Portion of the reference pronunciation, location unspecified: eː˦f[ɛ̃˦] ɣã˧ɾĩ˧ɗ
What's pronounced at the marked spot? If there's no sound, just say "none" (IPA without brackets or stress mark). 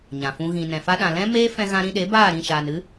ɛ̃˧